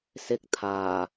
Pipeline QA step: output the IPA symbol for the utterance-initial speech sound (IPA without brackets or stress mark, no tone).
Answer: s